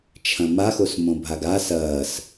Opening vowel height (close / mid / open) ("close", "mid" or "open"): open